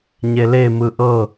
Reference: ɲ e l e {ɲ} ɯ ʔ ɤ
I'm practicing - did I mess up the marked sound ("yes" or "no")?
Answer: yes